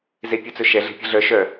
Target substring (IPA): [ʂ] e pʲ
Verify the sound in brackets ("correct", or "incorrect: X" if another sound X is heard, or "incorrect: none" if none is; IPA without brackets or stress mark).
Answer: incorrect: z